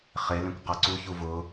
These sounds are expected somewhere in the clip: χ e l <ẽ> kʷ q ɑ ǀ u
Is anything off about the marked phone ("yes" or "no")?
no